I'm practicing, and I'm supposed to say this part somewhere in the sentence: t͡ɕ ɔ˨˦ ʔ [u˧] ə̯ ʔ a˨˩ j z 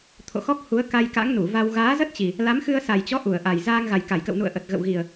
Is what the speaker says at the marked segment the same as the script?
no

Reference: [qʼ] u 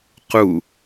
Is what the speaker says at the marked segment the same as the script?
no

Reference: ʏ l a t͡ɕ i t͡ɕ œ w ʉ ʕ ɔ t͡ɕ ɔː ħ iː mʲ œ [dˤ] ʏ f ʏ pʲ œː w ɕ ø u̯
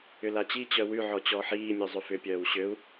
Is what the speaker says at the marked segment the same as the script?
no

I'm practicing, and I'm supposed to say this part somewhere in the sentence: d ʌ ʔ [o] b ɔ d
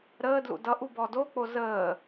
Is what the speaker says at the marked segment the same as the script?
no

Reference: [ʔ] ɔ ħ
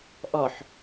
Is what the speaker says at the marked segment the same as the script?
yes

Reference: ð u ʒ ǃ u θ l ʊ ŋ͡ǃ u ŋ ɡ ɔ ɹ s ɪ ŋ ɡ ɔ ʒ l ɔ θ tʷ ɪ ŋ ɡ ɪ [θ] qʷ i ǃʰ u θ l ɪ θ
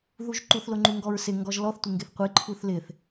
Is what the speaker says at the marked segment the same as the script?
yes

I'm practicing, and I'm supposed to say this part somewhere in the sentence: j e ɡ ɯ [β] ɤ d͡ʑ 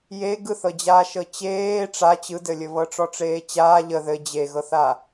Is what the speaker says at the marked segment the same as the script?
no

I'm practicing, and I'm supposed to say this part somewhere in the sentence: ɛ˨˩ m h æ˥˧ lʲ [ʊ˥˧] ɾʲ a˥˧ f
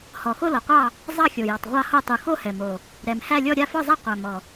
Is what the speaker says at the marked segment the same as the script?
no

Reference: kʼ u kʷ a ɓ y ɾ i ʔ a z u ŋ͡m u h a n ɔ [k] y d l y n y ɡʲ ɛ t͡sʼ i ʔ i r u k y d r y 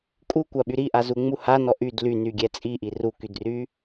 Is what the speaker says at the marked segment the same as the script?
no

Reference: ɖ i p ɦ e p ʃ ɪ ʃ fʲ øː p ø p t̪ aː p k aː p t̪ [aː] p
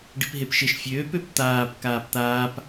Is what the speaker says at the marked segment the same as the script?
yes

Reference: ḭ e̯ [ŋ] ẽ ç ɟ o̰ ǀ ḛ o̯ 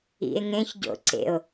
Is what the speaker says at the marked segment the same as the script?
yes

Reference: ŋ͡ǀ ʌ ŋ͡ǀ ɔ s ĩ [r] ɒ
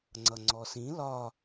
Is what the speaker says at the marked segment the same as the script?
no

